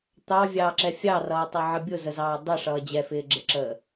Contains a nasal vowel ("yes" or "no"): no